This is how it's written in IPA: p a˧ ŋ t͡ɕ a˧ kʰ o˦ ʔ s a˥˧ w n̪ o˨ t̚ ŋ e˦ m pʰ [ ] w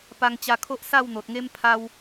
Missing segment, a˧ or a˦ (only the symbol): a˦